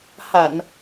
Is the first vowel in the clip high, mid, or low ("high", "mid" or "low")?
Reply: low